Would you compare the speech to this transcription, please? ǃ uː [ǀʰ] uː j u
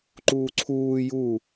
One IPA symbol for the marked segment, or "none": ǀʰ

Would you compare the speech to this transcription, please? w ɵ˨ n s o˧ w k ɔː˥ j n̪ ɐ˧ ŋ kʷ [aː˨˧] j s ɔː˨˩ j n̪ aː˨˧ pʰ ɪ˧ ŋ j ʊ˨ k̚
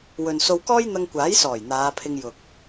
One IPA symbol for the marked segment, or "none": aː˨˥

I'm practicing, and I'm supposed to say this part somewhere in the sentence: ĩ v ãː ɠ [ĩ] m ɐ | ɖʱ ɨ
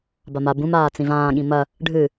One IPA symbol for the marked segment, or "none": ĩ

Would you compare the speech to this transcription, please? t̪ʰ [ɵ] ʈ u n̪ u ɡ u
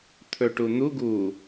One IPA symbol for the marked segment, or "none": ɵ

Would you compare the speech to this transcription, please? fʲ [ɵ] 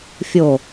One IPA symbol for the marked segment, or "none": o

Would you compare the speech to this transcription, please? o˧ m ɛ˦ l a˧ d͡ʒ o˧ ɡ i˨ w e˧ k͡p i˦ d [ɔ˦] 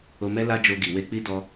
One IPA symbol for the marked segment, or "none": ɔ˦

